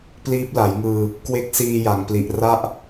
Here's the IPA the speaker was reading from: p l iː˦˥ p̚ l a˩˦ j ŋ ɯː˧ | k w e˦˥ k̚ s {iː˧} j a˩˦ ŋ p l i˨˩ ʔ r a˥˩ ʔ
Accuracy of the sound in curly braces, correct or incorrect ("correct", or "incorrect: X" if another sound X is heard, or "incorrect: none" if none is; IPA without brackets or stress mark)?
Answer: correct